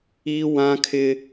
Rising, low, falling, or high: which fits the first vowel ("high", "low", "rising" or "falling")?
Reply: high